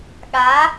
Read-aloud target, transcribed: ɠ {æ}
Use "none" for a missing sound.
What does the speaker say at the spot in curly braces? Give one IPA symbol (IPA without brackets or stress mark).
a